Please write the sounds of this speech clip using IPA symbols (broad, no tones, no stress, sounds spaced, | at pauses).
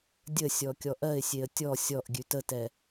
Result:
dʲ ə sʲ ɔ kʲ ɔ ʔ ɜ ɪ̯ sʲ e ə̯ tʲ ɔ sʲ ɔ ʔ ɡʲ ʉ t ə t ɛ